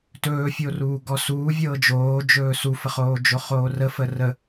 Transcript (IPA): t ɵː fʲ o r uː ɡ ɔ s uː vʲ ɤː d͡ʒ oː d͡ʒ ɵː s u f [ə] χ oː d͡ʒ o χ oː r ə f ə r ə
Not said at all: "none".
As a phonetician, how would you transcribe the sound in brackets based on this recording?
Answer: ə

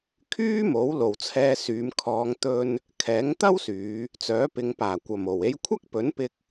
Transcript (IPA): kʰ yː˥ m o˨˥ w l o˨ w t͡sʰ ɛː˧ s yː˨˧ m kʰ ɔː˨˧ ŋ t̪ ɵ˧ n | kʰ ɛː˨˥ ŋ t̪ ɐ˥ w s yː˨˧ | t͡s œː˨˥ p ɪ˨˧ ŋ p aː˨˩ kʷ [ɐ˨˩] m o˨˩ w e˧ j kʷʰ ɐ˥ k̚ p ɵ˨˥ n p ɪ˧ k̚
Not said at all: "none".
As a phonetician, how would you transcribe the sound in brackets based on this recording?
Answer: ɐ˨˩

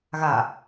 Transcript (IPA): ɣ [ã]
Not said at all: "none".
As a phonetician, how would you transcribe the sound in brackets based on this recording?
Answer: a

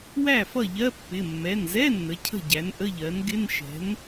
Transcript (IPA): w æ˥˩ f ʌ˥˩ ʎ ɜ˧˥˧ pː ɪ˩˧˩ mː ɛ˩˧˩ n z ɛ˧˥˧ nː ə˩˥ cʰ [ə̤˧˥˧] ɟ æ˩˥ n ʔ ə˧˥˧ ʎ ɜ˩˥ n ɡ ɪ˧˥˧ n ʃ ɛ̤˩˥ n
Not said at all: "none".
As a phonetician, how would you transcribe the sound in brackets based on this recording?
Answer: ə̤˥˩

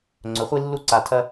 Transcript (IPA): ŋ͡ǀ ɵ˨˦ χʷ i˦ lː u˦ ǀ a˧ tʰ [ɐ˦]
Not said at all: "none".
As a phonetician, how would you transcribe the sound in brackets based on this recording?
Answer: ɐ˦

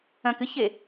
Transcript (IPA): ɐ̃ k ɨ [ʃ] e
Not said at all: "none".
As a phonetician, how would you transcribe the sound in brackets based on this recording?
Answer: ç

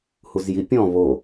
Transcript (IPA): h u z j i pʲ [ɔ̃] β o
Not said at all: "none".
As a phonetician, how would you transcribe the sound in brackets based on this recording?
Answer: ɔ̃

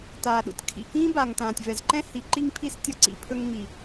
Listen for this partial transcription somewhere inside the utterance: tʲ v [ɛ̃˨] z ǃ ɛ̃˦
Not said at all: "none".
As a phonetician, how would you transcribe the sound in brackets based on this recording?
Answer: ɛ˨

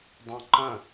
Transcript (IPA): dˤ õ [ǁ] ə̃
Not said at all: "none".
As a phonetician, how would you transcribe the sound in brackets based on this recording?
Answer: ǃ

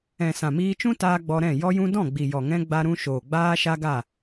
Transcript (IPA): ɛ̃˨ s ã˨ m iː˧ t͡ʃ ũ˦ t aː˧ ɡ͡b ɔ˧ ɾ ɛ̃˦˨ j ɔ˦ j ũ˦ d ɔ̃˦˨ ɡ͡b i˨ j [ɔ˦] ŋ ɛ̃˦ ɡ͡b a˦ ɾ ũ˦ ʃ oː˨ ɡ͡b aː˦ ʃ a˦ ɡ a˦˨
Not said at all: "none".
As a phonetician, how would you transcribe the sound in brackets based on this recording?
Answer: ɔ˨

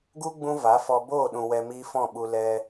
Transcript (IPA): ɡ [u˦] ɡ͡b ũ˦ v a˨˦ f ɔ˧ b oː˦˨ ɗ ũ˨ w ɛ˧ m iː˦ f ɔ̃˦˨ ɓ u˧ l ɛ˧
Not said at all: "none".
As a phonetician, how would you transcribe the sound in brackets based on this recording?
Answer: u˦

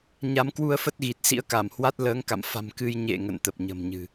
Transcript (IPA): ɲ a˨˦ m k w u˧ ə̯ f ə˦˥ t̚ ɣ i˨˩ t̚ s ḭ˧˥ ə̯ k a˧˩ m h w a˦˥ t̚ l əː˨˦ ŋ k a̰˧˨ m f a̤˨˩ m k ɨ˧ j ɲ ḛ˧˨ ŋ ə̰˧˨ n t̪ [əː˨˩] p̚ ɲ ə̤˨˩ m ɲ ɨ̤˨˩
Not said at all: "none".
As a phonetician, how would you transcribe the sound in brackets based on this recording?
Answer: ə˨˩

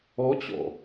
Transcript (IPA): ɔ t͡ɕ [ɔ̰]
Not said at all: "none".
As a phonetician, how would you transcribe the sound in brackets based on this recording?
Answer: ɔ̰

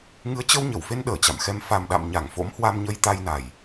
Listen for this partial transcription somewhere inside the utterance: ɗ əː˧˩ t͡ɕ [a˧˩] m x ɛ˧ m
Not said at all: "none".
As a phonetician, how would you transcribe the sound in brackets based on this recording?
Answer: a̰˧˨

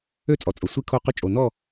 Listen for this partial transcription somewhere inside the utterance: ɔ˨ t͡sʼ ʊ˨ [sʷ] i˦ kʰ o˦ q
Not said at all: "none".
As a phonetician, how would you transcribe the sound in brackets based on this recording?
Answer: sʷ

